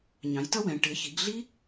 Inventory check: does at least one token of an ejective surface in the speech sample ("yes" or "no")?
no